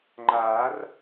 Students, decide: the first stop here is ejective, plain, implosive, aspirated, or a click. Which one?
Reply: click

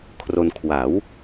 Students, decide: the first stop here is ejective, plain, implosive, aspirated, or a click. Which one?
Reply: aspirated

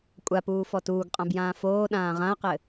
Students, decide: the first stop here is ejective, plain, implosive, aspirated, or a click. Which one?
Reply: ejective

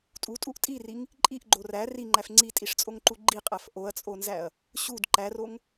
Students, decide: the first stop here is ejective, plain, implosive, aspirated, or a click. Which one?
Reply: ejective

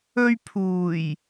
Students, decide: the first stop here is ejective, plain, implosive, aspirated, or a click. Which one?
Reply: aspirated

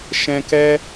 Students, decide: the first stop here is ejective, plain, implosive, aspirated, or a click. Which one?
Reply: plain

